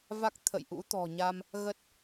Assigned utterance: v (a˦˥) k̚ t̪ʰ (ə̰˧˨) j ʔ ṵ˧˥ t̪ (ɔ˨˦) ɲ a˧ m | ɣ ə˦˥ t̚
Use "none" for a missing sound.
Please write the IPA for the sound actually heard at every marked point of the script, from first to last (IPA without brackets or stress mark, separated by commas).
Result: a˦˥, ə̰˧˨, ɔ̤˨˩